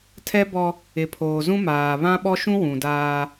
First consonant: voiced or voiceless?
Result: voiceless